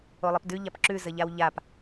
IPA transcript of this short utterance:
olˠəpdʉ ʎapǁʉ zəʎawʎap

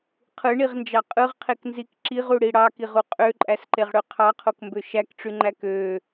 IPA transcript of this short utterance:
qʰɯɳiʁnd͡ʒɑ qʼɯʁqʰeknzik ǁiʁuɽi ɽɑkiʁu qʼøǃʼæsǃeʁɽø qʰɑqʰokmbø ʃækʈ͡ʂyŋ͡ǃæ kø

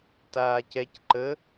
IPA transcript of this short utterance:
taːcɛc ǃə

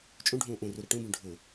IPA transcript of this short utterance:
t͡ʃʼũɖʱũː ʔũruɾɛ ʈũbũ ɖʱʊ

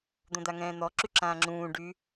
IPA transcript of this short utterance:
d̪õd̪aŋɛ̃ːn̪ɔ ǁyǁãːŋ͡ǁũː ɖy

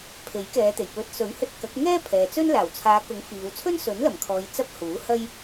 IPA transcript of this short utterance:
pʰe˨˥jkɛː˨˧t̪e˨˩j pɵ˨˥t̚sɵ˨˥ɥhɵ˧t̚ kɐ˨˥k̚ ŋɛː˥pʰɛː˨ t͡sɵ˥n laː˨˩wt͡sʰaː˨˧kʊ˨˥ŋ fiː˨˧w t͡sʰɵ˥nsɵ˨˥nlɐ˨˩mkʰɔː˨j t͡sɐ˥p̚huː˨˥hɐ˥j

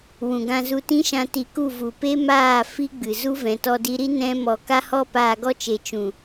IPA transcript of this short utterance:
wũ˨ɡã˧ zu˧tĩ˦ʃã˧ ti˧ku˦˨ vu˨pe˦maː˦˨ fi˦ɡ͡bɨ˨ zu˦vɛ̃˨ tɔ˧di˧ɾi˦ nɛ̃˦mɔ˧ ka˦ hɔ˦ paː˧ɡɔ˦t͡ʃe˨ t͡ʃũ˨

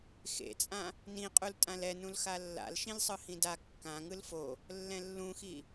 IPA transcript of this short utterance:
xḛt͡sʼã | nĩqʼultʼãl ɛnũl xalːa̰l ʃĩlsˤɯhĩda kːã ŋɯlfo | lːɛ̃lːũxi

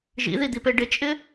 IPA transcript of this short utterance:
ʒḭðid̪ipe ɖɪt͡ʃʼɪ

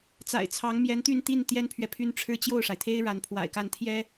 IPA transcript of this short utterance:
t͡sa̰˨˩ɪ̯t͡sʰɑ˧˥ŋmjɛ˧˥n t̪y˥˧nt̪i˥˩n t̪jɛ˥npʰɥɛ˨pʰy˥nʈ͡ʂʰɻ̩˥ t͡ɕjo˥˩ʊ̯ʂa˩ɪ̯t̪ʰe˥ɪ̯ ɻa˧˥npʰwa̰˨˩ɪ̯ka˥˩n t̪ʰjɛ˥

